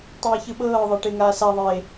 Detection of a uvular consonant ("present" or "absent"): absent